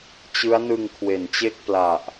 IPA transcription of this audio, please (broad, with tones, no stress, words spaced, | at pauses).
t͡ɕɯ˦˥a̯nɯ˧ŋ kʰwe˩˦nt͡ɕe˥˩k̚pla˨˩ʔ